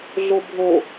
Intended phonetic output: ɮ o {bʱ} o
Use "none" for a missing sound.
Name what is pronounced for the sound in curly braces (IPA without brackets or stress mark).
bʱ